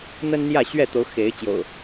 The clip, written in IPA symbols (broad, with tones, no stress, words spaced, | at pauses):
n̪ə˦nn̪jä˥˨ ɕɥɛ˥˨t̪o˨˦ʊ̯ xe˨˦ɪ̯ t͡ɕjo̰˨˩ʊ̯